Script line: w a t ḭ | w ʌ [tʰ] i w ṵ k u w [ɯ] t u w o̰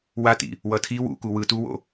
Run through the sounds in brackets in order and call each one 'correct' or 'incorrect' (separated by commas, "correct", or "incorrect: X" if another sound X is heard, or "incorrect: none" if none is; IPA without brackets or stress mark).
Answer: correct, correct